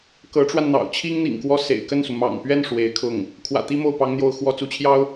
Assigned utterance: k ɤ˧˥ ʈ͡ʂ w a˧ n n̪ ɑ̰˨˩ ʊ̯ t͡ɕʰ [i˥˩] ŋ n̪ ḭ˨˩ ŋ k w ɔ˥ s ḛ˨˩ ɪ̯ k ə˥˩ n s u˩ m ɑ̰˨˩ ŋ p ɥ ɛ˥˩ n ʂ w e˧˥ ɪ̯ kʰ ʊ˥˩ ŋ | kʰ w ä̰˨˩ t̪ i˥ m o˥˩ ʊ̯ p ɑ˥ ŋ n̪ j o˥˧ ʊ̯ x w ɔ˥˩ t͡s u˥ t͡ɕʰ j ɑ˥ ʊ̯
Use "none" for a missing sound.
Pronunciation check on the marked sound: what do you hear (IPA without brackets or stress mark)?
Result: i˥